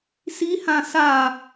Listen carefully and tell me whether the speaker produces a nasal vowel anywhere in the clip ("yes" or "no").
yes